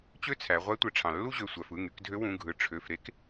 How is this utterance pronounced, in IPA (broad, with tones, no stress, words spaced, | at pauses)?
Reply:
t͡ɕø˥t͡sʰæ˩˧ ʁʷæ˧˥tʷe˩ ʈ͡ʂʰɑ̃˩lːu˥ʑø˩˧˩sʷæ˩˧˩f ɯ˩˧˩ŋy˩˧kdʱø˧˥ wũ˩˧˩ɡʱɯ˩˧˩ ʈ͡ʂʰø˩˧˩fɾe˧˥k